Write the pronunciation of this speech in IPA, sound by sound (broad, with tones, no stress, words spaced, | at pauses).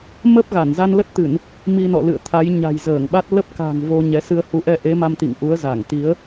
mə˦˥p̚ ɣa˧˩nza˧nlə˦˥t̚t̪ɨ˧˩˨n | mi˧nɔ̰˧˨lɨ̰˧˨ə̯t̪ʰa˨˦j ɲa̤˨˩jzəː˧˩ŋɓa˦˥t̚ lə˦˥p̚ka̤˨˩ŋ vo˧ɲɛ˨˦ sɨ˧ə̯hu˨˦ʔɛ˧ ʔe˨˦ma˧mt̪ḭ˧˨ŋ ʔu˨˦ə̯ za˧˩ŋt̪i˨˦ə̯